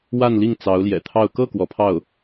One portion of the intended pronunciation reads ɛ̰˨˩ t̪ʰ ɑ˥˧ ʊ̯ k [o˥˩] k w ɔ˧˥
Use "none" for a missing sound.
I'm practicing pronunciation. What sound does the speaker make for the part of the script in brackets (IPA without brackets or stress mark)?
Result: ɤ˥˩